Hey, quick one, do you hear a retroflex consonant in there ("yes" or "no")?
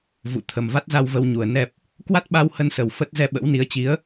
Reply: no